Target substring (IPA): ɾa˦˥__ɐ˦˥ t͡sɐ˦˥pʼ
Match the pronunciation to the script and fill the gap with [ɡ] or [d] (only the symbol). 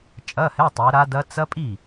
d